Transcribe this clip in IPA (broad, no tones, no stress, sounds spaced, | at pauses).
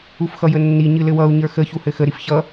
u f x ʌ j ə nː i ɲ ɨ l ɘ w ʌ u̯ ɲ ə˞ x ə ç u h ɘ x ə ɾ i f ç ʌ